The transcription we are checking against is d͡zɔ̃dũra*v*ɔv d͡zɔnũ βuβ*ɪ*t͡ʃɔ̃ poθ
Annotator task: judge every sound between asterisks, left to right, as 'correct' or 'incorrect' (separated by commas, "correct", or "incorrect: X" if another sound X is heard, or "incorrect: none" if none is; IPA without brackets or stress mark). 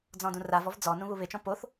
correct, correct